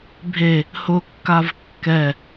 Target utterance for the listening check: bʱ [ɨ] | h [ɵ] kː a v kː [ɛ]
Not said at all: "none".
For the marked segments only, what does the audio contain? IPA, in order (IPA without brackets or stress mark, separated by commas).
e, ʊ, ɛ